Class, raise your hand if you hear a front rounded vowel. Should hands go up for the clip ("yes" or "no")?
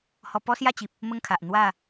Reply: no